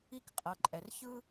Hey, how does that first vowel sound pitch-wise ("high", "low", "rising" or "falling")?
high